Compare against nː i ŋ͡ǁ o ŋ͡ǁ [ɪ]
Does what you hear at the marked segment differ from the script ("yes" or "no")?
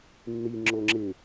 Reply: no